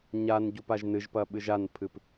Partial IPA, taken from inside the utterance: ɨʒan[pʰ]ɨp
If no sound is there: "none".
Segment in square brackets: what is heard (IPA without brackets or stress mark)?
pʰ